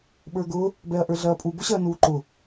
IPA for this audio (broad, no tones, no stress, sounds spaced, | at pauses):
ɓ ə˞ ɡ ʊ | b ɛ ɐ̯ ʔ ə˞ ɮ ɐː pʼ u b ʊ ɕ ɐː n uː ǃ ʊ